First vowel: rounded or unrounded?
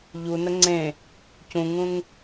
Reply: rounded